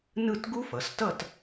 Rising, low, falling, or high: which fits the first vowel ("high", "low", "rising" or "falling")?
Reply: falling